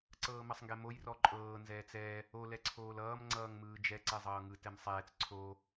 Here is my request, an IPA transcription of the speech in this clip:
ǀɤːmʌsˤŋɡɛmoj rɔǃʼɤː nzɛːt͡sɛ | o lɛǀʰoːlʌːm ŋ͡ǀʌːŋmɯːd͡ʒɛ ǀɛzˤɤːŋɯ tɛmsˤɛːt͡s ǀʰo

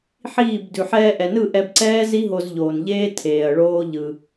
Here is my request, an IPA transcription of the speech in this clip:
ħiː˦˨b dʉ˨ħɛː˧ʔɛ˨nɯ˦˨ ʔɛ˧bǀɛː˦ zi˦ɦo˧zʎoː˨nʎeː˦ tʰeː˨ɐ̯ɭoː˦ʎɯ˧

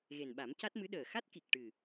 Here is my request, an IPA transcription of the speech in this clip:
ɣe˨˩nɓa˨˩˦mca˦˥t̚mɨ˧˥ ɗəː˨˩xa˦˥t̚ ki˨˩k̚ʈɨ˨˩

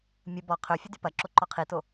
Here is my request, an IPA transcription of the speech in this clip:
mʲə bɔ qʰøfʲə dypɐǁo ǃɔqʰito

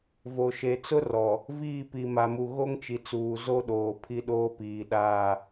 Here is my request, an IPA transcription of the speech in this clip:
vo˨ʃe˨t͡sʊ˦ rɔ˨ | viː˦˨pi˨ma˨mu˨ ɣo˦ŋt͡ʃi˨t͡suː˨ zo˦ ɗoː˨pʰi˦ɗoː˦piː˨ ɗaː˦˨

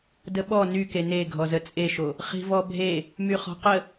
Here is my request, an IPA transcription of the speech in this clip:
dəɓɔ nyke ne ɡʱɔzət͡sʼeʃo | χi̤vɔbʱe | myχɔ̤qə

